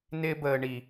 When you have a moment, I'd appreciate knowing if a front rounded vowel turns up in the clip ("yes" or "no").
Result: no